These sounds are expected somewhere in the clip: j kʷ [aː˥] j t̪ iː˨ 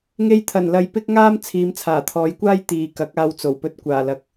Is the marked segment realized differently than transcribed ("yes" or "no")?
no